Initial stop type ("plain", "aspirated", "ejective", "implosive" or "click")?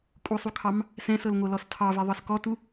ejective